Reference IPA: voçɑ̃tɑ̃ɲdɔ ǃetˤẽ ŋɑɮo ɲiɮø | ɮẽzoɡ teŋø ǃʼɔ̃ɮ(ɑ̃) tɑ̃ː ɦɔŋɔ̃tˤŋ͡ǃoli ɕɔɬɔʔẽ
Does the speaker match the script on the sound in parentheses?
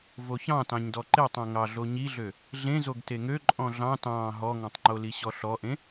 yes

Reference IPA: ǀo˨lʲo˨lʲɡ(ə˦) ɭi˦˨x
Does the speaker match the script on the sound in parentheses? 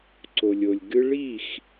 no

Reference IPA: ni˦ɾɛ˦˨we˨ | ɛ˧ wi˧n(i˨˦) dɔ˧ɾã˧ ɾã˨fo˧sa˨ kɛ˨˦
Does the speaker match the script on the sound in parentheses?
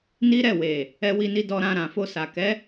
no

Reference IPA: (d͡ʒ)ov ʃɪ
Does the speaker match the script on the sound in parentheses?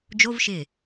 yes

